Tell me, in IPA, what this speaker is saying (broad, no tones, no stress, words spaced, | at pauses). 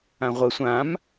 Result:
ãʁʷə sʷãm